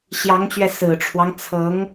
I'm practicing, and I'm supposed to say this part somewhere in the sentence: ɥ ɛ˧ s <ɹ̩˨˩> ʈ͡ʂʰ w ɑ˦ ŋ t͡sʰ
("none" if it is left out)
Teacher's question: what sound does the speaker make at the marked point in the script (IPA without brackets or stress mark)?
ɹ̩˨˩